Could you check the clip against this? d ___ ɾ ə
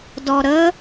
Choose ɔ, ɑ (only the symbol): ɔ